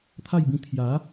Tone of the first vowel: falling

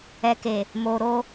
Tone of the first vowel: low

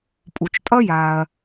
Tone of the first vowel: low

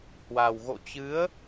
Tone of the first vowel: low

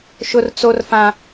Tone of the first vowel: high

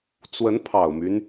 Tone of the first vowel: rising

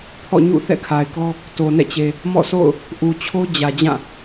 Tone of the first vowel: falling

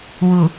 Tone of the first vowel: low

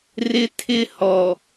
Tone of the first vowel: high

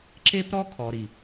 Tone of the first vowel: high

